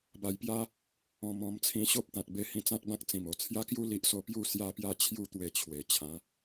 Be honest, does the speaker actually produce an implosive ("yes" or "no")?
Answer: no